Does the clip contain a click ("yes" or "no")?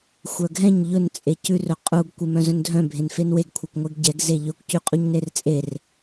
no